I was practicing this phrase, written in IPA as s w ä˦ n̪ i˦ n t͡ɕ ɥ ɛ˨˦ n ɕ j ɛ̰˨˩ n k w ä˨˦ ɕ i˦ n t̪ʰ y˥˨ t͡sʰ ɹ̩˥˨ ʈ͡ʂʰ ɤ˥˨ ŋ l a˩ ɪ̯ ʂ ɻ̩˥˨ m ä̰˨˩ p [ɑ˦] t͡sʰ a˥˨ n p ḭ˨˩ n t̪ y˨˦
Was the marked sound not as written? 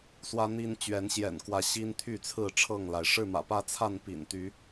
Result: yes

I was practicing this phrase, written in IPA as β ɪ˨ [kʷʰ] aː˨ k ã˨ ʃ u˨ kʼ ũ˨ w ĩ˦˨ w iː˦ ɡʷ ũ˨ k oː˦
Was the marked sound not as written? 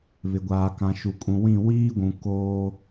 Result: yes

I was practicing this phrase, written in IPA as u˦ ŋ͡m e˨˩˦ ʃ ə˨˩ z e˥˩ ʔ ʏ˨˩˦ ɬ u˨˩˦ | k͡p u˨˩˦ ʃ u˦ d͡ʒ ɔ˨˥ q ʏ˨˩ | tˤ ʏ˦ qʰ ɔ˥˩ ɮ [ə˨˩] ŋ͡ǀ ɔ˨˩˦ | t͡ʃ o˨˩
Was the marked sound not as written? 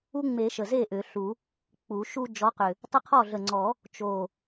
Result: no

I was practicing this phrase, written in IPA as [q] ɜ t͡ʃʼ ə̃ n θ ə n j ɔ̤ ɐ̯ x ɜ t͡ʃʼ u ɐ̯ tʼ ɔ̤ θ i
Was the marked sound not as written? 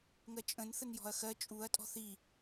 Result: yes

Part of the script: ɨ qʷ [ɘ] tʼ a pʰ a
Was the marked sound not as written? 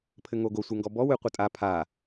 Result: yes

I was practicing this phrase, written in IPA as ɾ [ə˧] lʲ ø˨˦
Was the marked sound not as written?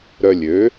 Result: yes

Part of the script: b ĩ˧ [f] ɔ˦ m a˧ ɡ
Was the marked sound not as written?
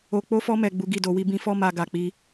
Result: no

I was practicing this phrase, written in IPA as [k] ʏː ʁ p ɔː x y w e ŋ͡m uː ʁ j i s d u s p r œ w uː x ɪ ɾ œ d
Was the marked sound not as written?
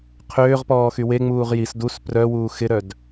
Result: yes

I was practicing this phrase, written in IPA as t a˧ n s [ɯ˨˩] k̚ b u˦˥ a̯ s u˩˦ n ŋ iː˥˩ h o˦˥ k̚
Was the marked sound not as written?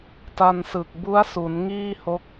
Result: no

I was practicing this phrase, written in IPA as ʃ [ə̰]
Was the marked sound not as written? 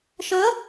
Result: yes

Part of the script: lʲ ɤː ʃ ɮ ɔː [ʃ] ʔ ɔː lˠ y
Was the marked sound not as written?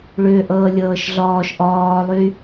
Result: no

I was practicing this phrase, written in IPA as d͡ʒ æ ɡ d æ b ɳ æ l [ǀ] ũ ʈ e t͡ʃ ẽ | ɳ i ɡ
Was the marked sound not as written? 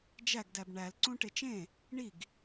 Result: no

